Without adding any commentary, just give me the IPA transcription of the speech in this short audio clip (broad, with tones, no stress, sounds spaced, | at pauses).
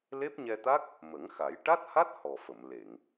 l e˦˥ p̚ ɲ ɛ˧ t̪ a˦˥ k̚ | m ə˨˩˦ ŋ x a˨˩˦ j ʈ a˦˥ t̚ h a˦˥ t̚ h ɔ˨˩ f ə˨˩˨ m l e˨˩˨ ŋ